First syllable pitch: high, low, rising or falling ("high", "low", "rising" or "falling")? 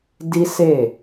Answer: high